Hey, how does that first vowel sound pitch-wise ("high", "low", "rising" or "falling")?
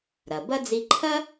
low